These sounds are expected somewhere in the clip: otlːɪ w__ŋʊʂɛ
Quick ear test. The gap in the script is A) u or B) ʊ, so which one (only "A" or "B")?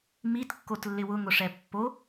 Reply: B